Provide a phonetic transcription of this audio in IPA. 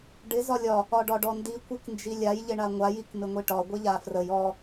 ɖ ɪ z ɒ lʲ ɒ | ɒ ɖ ɒ ɖ ɔ n d i kʷ i k n d͡ʒ i lʲ a j ʎ ɪ ɳ a ŋʷ a j i k m ɪ ŋʷ i ʈ ɒ ɡʷ ɪ ʎ a f r ə j ɔ

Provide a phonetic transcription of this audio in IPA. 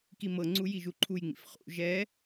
k i m ɤ ŋ͡ǀ u j i ʒ u ǃʰ u j ŋ͡m ḭ f χ ṵ ʒ ɛ

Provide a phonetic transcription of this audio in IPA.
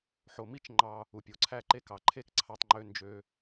ħ o˨ m i˦ t͡ʃ ŋ͡ǃ ɑ˧ | u˨ pʲ o˨ ǀʰ æ˧ ǃ e˧ k ɑ˨ ǃʰ e˦ k ǀʰ ɑ˧ tˤ ŋ͡ǃ ø˧ n d͡ʒ ø˧

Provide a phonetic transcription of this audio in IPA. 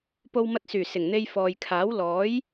p o˧ w m ɐ˧ t̚ s yː˨˩ s ɪ˨˩ ŋ n̪ e˧ j f ɔː˨ j kʰ aː˨˥ w l ɔː˨˥ j

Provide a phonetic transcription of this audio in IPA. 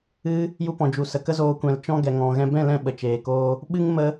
ɨ˦ | j u˧ p ɔ̃˨ d͡ʒ u˨ s ə˨ k ə˦ z oː˧ kʷ ɛ̃˨ l t͡ʃ ɔ̃˦ ɡ ɛ˨ ŋ ɔ̃˨ ɣ ɛ̃˧ b ɛ̃˦˨ l ɛ̃˧ ɓ ə˨ t͡ʃ eː˨ k oː˦ | ɓ ɨ˦ ŋ m ə˦

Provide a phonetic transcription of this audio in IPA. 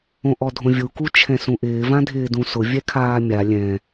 õ ʔ ɔ dʱ õ vʲ u k u t͡ʃʰ ɛ̃ s ũ ʔ ɪː v ã dʱ ɪː d ũ s ʊ vʲ ɛ kʰ aː mʲ a lʲ ɛ̃

